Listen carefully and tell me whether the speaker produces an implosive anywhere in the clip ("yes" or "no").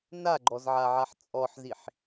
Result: no